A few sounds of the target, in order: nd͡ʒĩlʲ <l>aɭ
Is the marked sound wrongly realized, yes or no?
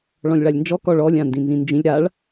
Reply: yes